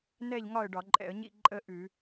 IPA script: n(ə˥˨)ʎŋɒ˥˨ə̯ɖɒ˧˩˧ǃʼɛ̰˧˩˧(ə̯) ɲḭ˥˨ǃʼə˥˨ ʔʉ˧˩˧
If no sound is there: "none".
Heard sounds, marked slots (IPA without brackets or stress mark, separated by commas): ɛ˥˨, ə̯